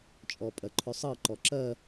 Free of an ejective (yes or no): no